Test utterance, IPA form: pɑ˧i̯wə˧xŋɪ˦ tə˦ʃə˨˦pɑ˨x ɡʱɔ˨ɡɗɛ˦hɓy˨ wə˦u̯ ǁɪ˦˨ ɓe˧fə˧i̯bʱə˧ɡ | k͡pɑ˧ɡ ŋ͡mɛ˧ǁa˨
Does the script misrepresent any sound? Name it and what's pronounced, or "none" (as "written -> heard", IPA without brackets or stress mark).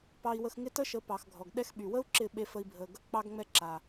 h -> x